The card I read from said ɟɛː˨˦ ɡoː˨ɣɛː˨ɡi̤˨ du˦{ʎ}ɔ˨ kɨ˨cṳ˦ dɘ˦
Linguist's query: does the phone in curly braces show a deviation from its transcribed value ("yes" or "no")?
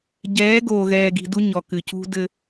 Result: yes